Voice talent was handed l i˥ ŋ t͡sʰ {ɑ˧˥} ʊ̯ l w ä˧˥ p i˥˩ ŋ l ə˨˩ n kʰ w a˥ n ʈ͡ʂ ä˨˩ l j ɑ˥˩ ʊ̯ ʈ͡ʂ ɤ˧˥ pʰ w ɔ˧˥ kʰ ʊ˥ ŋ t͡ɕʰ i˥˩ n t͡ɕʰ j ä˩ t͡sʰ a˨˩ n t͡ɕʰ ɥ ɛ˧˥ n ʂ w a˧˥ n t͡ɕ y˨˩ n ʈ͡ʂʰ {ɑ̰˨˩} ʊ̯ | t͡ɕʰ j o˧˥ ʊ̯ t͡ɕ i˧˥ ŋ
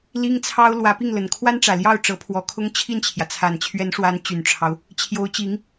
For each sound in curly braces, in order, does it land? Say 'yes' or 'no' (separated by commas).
no, no